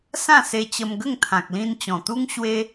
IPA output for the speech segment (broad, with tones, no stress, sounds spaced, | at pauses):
s ã˥˧ s e˧ t͡ɕ ə˧ m ɡ ə˥˧ ŋ t̪ʰ ã˨ k̚ l ĩ˧ n t͡ɕ ɔ̃˨˩ t̪ u˦ ŋ ɕ w e˦